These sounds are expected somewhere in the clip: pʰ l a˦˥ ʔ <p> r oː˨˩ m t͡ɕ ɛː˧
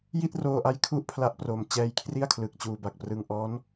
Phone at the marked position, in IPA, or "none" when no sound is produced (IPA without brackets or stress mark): p